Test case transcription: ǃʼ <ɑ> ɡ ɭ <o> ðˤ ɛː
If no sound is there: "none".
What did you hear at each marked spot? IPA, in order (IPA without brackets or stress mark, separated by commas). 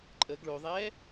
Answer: ə, o